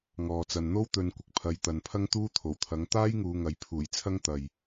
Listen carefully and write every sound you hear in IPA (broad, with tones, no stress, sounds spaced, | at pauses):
ŋ ɔː˨ t͡s ɐ˨ n n̪ o˥ w t̪ ɵ˨˧ n kʷ ɪ˨ k̚ pʰ ɐ˨˧ j t̪ ɐ˨ n pʰ ɐ˥ ŋ t̪ uː˥ t̪ʰ o˨˩ w t̪ʰ ɐ˨˥ ŋ t̪ aː˥ j ŋ uː˨˧ ŋ ɐ˨ j pʰ uː˨˩ j t͡sʰ ɐ˥ ŋ t̪ ɐ˨ j